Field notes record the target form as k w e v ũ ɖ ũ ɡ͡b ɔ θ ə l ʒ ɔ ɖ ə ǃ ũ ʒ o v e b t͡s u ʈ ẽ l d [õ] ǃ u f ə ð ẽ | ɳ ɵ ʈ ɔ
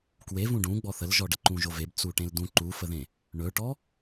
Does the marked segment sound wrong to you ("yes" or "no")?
yes